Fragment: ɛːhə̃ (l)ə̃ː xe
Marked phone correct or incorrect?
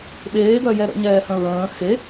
incorrect